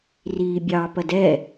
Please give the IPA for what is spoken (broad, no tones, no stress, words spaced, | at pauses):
riːbʲɑ pɐdɛ